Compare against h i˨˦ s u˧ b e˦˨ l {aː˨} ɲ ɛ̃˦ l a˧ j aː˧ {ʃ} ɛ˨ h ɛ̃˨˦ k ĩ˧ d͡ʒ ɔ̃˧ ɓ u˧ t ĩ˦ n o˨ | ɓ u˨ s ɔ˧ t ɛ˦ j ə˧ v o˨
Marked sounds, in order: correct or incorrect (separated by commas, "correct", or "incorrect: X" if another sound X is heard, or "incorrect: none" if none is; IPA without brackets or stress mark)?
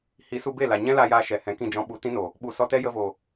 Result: incorrect: a˨, correct